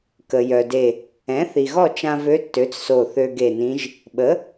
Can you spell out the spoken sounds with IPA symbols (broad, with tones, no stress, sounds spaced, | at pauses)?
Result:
k ə˩ j œ˩ d e˧˩ | ɛ̃˩˥ θ i˩ ɣ ɔ˥˨ t͡ʃ ã˧ v ø˧˥ tː ø˩˥ t͡s s o˧˩ θ ø˧ ɡ e˧˩ n ĩ˧˥ ʒ | ɓ ə˩˥